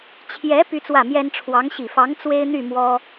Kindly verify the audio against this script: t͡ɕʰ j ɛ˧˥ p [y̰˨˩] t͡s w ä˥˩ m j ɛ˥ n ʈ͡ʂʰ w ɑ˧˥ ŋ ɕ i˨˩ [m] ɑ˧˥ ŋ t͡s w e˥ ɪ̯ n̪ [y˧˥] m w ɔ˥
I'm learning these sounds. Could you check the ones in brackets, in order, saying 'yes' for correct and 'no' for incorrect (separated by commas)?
no, no, no